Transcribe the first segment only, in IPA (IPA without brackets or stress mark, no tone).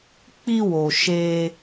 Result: k͡p